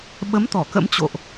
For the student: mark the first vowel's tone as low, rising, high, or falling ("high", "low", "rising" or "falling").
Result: rising